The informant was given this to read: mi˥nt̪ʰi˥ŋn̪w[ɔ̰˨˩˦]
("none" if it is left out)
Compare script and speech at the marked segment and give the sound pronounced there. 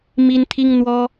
ɔ˥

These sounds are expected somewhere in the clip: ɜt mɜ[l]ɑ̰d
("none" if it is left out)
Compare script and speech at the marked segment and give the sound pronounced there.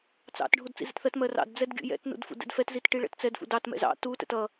r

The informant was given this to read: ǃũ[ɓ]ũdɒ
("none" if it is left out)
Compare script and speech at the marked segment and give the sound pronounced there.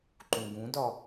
ɡ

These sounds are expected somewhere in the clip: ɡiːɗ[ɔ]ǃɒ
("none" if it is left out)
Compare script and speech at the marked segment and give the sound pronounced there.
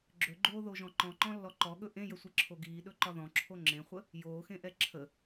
ɵ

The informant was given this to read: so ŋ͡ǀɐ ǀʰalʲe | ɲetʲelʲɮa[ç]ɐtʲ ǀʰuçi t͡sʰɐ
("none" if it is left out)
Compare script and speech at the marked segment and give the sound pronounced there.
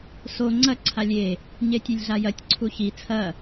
j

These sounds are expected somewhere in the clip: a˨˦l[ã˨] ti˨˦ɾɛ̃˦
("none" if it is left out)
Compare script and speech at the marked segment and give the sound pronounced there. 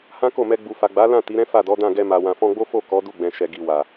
ã˦˨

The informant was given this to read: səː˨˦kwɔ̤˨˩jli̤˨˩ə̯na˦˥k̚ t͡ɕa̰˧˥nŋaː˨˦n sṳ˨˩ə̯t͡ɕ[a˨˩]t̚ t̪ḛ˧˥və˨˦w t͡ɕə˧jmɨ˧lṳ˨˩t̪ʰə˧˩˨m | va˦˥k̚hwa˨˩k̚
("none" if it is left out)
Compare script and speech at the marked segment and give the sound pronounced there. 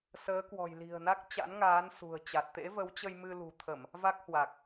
a˨˩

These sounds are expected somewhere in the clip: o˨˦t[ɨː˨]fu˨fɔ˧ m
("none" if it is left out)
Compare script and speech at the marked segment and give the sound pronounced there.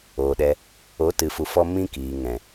ɨ˨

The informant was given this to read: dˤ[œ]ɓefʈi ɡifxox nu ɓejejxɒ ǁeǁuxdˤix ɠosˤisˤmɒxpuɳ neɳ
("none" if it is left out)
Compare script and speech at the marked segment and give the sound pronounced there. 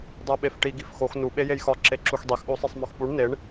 æ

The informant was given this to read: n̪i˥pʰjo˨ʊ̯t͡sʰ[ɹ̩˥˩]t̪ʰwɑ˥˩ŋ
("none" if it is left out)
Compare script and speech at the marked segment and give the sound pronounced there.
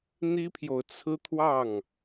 ɹ̩˥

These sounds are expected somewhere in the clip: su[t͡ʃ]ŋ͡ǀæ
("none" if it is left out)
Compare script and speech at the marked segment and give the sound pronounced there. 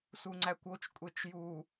none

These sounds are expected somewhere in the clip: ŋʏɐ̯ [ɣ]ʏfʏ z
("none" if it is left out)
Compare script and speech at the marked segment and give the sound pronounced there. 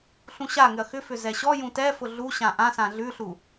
x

